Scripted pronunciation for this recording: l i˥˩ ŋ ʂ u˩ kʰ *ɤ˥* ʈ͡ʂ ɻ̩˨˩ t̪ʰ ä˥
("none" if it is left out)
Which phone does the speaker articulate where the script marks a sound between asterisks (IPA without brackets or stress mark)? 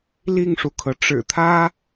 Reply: ɤ˩